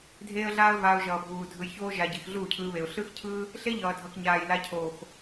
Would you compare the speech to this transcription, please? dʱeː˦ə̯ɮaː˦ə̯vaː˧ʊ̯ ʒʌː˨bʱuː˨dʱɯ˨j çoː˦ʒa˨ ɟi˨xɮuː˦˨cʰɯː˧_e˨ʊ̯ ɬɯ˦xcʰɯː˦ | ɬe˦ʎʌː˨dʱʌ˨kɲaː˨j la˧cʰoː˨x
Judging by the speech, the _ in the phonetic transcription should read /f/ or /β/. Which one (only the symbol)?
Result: β